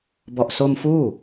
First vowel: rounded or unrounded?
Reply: rounded